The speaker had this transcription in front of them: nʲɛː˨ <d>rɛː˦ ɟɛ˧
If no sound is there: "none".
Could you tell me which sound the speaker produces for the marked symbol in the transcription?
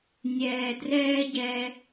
d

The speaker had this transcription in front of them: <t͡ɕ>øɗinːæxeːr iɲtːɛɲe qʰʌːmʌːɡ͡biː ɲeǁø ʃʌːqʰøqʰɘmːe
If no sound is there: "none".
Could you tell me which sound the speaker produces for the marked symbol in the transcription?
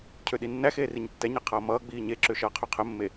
cʰ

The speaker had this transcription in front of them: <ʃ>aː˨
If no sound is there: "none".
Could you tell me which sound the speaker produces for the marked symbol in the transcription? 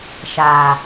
ʃ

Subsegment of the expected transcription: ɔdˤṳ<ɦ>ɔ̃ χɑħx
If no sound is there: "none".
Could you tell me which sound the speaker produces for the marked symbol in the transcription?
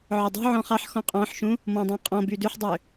ʕ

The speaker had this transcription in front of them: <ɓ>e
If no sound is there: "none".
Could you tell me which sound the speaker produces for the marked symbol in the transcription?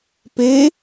p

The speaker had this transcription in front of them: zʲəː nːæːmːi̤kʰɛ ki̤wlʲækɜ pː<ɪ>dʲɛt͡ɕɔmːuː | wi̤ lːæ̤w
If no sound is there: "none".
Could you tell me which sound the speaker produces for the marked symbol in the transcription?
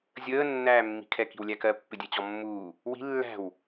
ɪ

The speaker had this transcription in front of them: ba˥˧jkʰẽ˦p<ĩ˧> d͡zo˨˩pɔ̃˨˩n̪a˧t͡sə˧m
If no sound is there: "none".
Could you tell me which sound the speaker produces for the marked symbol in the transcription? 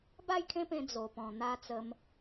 ẽ˧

